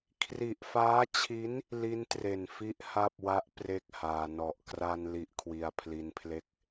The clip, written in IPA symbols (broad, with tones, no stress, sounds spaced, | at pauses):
kʰ r i˨˩ ʔ f aː˦˥ t͡ɕʰ i˦˥ n | l i˦˥ n t r e˨˩ n f i˦˥ ʔ h a˥˩ p̚ w a˦˥ ʔ p r e˥˩ k̚ h aː˧ n ɔ˨˩ ʔ k r a˧ n l i˦˥ ʔ kʰ w i˧ a̯ pʰ l i˧ n pʰ l e˥˩ k̚